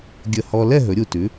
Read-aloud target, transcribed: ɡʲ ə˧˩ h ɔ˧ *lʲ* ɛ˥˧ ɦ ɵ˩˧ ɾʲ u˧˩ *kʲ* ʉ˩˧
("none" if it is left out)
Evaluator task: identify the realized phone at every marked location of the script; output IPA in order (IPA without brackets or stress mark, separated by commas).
l, t